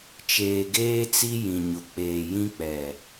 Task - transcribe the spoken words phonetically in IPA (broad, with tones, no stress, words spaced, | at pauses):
t͡ʃeː˨ɡeː˦t͡si˦ jĩ˨ɲʊ˨ k͡peː˨jĩ˦k͡pɛ˨